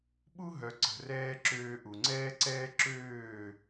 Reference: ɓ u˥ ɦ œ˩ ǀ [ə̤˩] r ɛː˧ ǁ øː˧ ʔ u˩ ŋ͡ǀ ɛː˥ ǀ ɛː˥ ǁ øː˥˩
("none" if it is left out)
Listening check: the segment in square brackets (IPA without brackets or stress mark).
ə̤˩